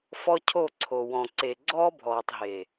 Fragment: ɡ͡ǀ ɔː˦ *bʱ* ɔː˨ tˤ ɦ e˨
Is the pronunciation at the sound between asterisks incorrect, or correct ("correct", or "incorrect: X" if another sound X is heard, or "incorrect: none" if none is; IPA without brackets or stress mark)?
correct